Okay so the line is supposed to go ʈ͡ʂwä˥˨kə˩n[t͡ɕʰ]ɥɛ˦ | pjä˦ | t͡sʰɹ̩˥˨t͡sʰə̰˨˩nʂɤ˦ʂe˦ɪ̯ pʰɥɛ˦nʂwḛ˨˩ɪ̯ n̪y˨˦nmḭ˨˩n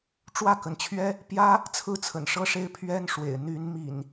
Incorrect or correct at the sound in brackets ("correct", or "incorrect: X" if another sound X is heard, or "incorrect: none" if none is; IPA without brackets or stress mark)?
correct